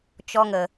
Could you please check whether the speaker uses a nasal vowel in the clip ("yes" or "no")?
no